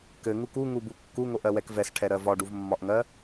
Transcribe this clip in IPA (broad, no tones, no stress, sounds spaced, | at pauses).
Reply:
k ɘ ŋ u k u ŋ u b u kː u ŋ o ʔ ɜ w ɛ k v ɛ s ʈʰ ɛ ɾ ɜ v ɒ ɖ u v mː ɒ ʔ ŋ ɜ